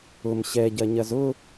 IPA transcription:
ʊ m ɕ ɛ ɟ ɐ ɲ ɐ z ʊ

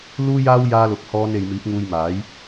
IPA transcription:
l uː˥ j aː˥ w j aː˥ l ʊ˧ k̚ h ɔː˥ n e˧ j m iː˨˥ p̚ ŋ uː˧ j m aː˨˥ j

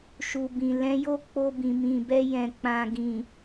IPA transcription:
ʃ u˨ b ĩ˨ l ɛ̃˨˦ j o˦˨ k͡p o˧ b ĩ˨ m ĩ˨ b ɛ˧ j ɛ̃˨ k͡p ã˨ ɡ ĩ˨

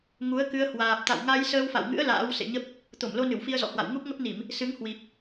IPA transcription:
ŋ u˨˦ ə̯ k ɨ˧ ə̯ h w aː˨˩ p̚ t̪ a̰˧˨ w ŋ a˧ j s əː˧ w f a̰˧˨ w ŋ ɨ̰˧˥ ə̯ l a̰ː˧˥ w s ḛ˧˨ ɲ ə˦˥ p̚ | t̪ o˧˩ m l o˧ n ɨ˧˩ w f i˧ ə̯ z ɔ̰˧˨ h w a̰˧˨ w ŋ u˦˥ p̚ ŋ ə˦˥ p̚ n i˧˩˨ m | s ɨ˨˦ ŋ h w i˨˩ p̚

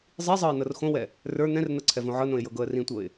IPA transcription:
zˤ i zˤ ɤ ɪ̯ n ɤ r x õ w ɛ | r ə˞ n̪ ɛ̃ r n ɤ ǀʰ ɛ v õ ʕ ɤ n õ ɪ̯ j ɤ ɡ ɤ ə̯ r ĩ tʷ ɤ ɪ̯

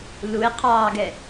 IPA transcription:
l u e̯ qʰ ɑː ɡ ɛ

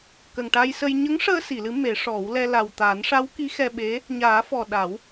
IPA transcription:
k ə˨˩ ŋ ʈ a˧ j s ə˧ j ɲ ə˧˥ ŋ ʂ əː˧ s i˨˩˨ l ɨ˨˩˦ m e˨˩˦ ʂ ɔ˨˩˦ w l ɛ˧ l a˨˩ w t̪ aː˨˩˦ n ʂ a˧˥ w k i˧˥ x ɛ˧ ɓ e˧˥ | ɲ aː˨˩˦ f ɔ˨˩ ɗ a˨˩˦ w

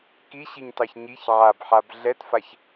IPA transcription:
k i ɕ i ɲ t ɑ ç ɲ i ç ʕ a b ħ a b ɮ ɛ t f a ç

